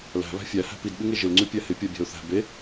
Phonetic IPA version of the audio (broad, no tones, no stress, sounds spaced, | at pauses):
l æ̤ β æ̤ fʲ æ h æ̤ p i d ɓ ɪ ŋ e ʒ ɪ l ŋ͡ǀ ʉ pʲ æ h ɪ pʲ a bʲ æ̤ ʊ̯ θ æ̤ b e